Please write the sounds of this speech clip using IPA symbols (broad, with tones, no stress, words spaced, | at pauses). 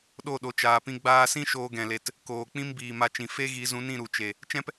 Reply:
ɗo˦˨ɗo˨t͡ʃaː˨pĩ˧ ɡ͡baː˧sĩ˦ ʃoː˧ɡɛ̃˨le˨t | koː˨k͡pĩ˦m biː˨ma˧t͡ʃĩ˨ fe˦ ɣi˨˦zũ˨˦nĩ˦˨ ɾu˨t͡ʃe˨ | t͡ʃɛ̃˦p